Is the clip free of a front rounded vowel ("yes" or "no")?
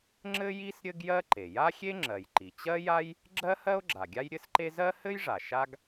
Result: yes